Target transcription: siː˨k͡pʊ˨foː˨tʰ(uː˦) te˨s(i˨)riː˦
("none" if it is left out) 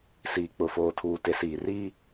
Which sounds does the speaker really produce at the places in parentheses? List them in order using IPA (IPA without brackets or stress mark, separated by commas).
uː˨, iː˨